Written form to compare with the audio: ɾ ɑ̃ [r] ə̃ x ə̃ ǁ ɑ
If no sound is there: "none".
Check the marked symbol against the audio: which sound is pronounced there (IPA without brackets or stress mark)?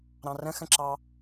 r